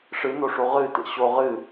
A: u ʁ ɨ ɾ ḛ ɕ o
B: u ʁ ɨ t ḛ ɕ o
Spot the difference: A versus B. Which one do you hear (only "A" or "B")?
B